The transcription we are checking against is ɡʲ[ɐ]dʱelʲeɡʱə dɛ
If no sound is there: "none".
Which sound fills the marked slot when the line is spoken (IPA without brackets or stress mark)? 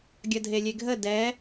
ɐ